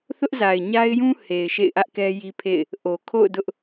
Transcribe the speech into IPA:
θʊ˦ʔza˨ɪ̯ɲa˦ɪ̯jũ˦ he˨ɪ̯ʃḛ˦˨ɪ̯ʔä˦ʔkɛ˦ ji˦pʰḛ˦˨ɪ̯ | ʔo˨kʰo̰˦˨ʊ̯dʊ˦ʔ

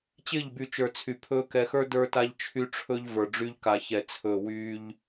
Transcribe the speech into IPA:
t͡ɕɪː˦˨ʎby˨t͡ʃə˞˨ t͡sʰy˨pʰɵː˦ kɛ˨xə˞˦ də˞˦ta˦ʎt͡ʃʰy˦ʈ͡ʂʰɵ˦ʎ və˞˨ɖ͡ʐy˦ʎka˨çɛ˨ t͡sʰɵː˨wyː˦ʎ

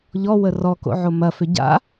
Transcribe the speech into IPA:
ʎɔwə rɔko̰ʕo mɐfʏ ɟa̰

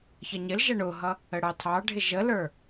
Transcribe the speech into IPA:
çʌɲɪlʒʌ ɳʊɦʌ | əɽɑtʰɑɖʱɪ ʒələ˞

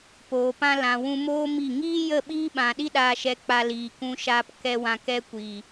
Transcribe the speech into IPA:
poː˨pã˧ lã˨wũ˧moː˦ mi˦˨ ŋiː˦jə˦˨ ɓiː˦ɓã˨ɗi˦ ɗaː˨ʃɛ˨ k͡pa˧liː˨kũ˧ʃaː˧p kɛ˨ wã˨ kɛ˧kʷiː˨

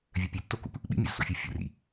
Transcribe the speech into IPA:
vʲœpʲøtːokṵp | ɓḭmʲo̰zso̰fʲɯː fʲṵrḭ

